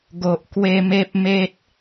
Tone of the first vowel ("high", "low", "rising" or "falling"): low